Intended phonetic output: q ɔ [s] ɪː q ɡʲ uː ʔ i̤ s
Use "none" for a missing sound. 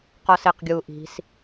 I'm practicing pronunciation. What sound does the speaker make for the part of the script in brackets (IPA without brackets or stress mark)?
s